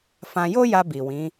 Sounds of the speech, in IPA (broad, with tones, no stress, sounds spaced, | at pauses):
f ã˧ j o˦ j a˧ b i˨ w ĩ˨˦